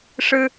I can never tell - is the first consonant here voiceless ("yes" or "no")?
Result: yes